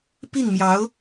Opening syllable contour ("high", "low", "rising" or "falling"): falling